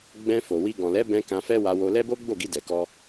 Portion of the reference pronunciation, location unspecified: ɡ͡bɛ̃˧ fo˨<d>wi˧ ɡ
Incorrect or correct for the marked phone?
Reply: incorrect: none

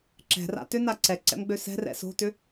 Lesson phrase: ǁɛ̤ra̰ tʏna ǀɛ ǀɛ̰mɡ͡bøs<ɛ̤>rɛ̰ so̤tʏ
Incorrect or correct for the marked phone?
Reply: correct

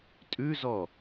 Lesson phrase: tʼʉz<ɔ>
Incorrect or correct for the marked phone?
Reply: correct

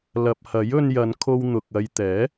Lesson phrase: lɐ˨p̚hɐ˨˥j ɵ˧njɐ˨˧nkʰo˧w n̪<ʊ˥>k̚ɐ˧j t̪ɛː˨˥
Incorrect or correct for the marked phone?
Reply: incorrect: ʊ˨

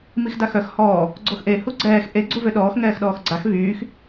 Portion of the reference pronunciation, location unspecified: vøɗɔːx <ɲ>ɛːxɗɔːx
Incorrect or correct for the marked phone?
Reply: incorrect: ŋ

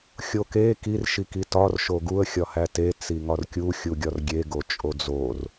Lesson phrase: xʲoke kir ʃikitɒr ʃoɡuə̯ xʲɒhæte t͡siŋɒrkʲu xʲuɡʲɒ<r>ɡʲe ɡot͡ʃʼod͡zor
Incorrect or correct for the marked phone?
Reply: correct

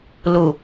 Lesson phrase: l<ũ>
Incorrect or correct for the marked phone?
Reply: incorrect: u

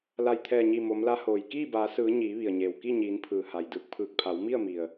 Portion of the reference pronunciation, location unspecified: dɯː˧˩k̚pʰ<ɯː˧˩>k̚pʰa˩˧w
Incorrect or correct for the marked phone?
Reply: correct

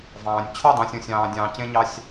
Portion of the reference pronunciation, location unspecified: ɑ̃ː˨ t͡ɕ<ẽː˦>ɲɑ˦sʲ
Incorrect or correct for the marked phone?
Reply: correct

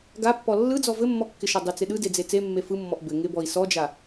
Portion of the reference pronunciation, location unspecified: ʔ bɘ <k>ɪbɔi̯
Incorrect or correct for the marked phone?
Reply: incorrect: ŋ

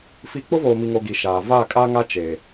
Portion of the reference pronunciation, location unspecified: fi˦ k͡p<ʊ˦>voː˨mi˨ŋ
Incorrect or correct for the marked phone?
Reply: correct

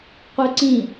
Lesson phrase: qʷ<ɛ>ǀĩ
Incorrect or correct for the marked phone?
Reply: correct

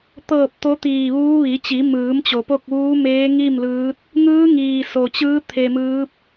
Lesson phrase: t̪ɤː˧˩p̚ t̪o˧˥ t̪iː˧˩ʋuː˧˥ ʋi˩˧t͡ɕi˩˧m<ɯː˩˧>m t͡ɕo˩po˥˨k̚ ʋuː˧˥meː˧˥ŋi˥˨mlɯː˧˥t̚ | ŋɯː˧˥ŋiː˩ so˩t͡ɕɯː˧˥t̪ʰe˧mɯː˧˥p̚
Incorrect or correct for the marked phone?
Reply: correct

